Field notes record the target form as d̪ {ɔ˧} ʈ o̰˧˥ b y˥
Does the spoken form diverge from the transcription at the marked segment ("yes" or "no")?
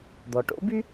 yes